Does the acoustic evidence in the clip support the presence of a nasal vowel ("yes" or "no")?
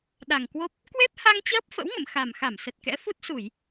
no